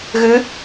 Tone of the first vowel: rising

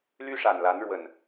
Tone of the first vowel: high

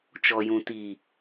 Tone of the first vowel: low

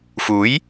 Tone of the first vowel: rising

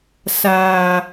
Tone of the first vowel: low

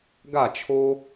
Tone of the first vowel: falling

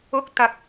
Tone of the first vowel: rising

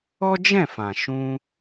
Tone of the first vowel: high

